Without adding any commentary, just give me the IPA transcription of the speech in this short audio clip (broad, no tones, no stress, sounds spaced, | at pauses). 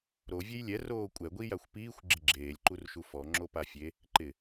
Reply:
ɾ o vʲ e j lʲ ɛ r oː kʷʼ ɛ ɡʷ i j a xʷ p iː xʷ ɡ͡ǁ ɪ ɡ͡ǁ eː lʲ ǃ u r ʃ u f ɔ ŋ͡ǁ o p a fʲ e | ǃ ɪ